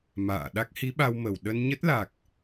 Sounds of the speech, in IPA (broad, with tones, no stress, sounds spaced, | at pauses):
m a̰ː˧˨ ɗ a˦˥ k̚ h i˨˦ ɓ a˧ w m ə˧˩ w ɗ ə˧ n ɲ ə˦˥ t̚ l a˨˩ k̚